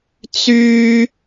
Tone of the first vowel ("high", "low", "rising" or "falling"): high